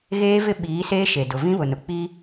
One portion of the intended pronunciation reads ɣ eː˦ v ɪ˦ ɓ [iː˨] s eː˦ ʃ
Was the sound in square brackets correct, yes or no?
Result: no